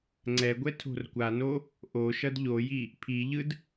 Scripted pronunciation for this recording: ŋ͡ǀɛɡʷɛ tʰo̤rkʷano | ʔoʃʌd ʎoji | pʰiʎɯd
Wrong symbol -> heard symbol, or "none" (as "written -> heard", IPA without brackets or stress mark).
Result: none